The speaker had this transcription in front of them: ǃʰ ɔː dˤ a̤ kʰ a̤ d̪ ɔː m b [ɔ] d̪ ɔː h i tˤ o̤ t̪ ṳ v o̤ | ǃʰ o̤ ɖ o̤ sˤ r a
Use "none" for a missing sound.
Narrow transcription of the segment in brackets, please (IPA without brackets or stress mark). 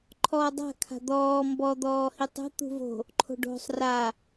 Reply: ɔ